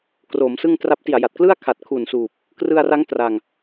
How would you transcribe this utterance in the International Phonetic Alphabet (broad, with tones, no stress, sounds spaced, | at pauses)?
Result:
k r oː˩˦ m s ɯ˥˩ ŋ t r a˦˥ p̚ t i˨˩ a̯ j a˨˩ t̚ k l ɯ˥˩ a̯ kʰ a˨˩ t̚ kʰ u˨˩ n s uː˨˩ p̚ | k r ɯ˧ a̯ r a˦˥ ŋ t r a˧ ŋ